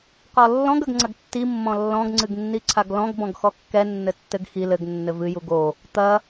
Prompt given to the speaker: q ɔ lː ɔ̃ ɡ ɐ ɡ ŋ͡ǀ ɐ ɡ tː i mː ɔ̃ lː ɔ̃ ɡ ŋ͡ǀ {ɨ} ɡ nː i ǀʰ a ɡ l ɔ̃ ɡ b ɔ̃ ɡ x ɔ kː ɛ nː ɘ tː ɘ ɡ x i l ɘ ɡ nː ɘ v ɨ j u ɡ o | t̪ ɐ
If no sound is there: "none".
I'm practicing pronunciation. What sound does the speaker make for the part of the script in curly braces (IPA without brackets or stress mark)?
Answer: ɨ